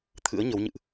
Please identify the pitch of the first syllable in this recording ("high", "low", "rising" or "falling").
rising